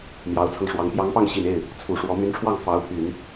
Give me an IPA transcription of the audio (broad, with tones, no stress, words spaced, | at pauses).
mjɑ˧˥ʊ̯t͡sʰɤ˧ŋʂwɑ˧˥ŋ pjɑ˧˥ŋpɑ˥˩ŋɕi˨˩n e˥˩ɪ̯ | t͡sʰu˨˩ʂwɔ˧˥ my˧˥nʈ͡ʂʰwɑ˥˩ŋ fɑ˧˥ʊ̯pʰy˨˩˦n